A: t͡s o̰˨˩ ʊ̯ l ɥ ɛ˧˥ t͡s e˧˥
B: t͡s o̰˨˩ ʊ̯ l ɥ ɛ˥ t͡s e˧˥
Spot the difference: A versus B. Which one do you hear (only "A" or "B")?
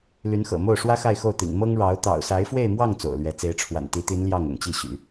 A